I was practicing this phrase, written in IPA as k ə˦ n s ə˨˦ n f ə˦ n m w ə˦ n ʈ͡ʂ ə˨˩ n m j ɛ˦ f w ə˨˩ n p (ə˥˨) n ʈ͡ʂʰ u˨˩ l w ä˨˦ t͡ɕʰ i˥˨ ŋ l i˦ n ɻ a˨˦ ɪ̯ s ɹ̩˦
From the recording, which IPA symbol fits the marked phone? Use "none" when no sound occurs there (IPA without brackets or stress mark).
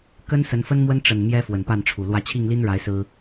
a˥˨